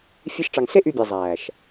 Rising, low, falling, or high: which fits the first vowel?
high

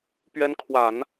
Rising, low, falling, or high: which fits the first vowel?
rising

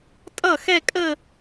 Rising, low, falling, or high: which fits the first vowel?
falling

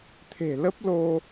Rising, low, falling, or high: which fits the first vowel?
low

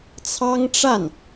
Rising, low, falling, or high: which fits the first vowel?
high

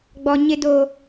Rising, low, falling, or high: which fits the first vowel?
high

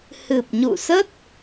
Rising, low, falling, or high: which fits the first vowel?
low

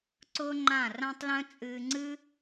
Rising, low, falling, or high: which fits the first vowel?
high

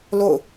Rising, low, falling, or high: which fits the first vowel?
falling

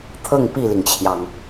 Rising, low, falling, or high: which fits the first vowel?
falling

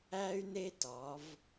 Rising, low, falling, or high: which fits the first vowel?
high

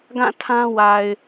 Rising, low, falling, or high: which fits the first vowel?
falling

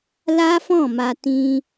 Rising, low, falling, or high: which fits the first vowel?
high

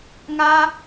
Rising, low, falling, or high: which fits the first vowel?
high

